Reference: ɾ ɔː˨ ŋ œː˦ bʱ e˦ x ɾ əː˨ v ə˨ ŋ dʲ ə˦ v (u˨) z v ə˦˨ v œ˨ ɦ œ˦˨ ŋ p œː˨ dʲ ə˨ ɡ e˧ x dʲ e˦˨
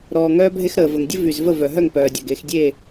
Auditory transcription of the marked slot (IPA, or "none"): y˨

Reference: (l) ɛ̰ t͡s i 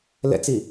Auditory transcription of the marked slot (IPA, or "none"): l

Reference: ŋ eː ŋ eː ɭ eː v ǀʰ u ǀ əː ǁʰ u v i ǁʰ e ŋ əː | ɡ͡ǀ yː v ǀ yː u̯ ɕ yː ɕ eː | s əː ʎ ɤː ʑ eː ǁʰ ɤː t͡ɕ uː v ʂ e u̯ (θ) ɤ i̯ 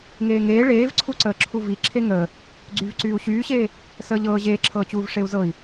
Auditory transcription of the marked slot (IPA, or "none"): z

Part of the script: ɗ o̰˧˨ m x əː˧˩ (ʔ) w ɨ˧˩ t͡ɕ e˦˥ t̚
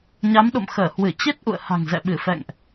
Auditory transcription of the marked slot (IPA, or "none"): h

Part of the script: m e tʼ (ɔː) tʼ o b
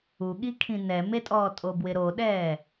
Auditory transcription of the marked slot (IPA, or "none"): ɔː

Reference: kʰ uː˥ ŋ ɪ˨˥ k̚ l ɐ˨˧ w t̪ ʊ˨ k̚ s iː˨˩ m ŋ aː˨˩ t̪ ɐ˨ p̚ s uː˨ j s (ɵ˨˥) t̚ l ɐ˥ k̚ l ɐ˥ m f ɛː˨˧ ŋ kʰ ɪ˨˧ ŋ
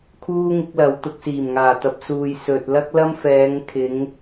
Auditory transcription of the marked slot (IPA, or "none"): ɵ˨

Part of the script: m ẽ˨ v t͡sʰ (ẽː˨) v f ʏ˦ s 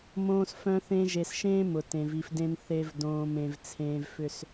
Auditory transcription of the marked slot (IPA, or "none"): ẽː˨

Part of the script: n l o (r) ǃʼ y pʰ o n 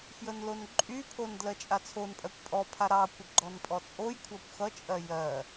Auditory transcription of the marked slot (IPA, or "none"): n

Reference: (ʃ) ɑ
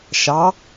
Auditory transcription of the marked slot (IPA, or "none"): ʃ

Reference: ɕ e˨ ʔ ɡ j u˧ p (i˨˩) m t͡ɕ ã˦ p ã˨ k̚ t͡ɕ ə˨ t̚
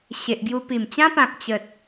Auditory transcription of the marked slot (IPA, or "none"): i˨˩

